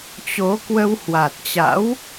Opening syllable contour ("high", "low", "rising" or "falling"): rising